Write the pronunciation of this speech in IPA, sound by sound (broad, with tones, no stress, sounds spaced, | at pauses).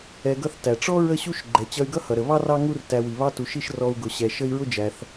ɛ˧ ɡ ʌ˥ θ t æ˩ ʈ͡ʂ ɔ˥ ɹ ə˥ ɕ u˥ ʃ ɡ͡ǃ ɛ˩ t͡ɕ ʌ˧ y̯ ɡ ʌ˥ h ʌ˩ ɾ ə˩ β ɑ˥ r ɑ˥ ŋ u˥ r t æ˧ w i˩ β ɑ˥ t u˩ ʃ i˥ ʃ r ɔ˧ u̯ ɡ ʊ˩ ɕ ɛ˩ ʃ ə˥ i̯ ɹ ʊ˥ d͡ʒ æ˩ θ